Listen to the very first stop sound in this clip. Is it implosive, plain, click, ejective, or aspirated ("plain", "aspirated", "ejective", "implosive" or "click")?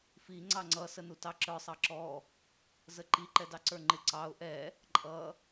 click